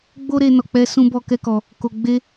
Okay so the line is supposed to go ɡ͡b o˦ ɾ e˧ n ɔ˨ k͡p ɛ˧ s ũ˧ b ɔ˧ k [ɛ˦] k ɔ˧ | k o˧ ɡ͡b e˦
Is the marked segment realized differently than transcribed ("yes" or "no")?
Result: no